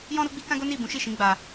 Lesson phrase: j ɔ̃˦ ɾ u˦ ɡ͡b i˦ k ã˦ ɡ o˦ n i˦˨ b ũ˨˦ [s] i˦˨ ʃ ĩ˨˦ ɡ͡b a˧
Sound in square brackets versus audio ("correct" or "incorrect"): incorrect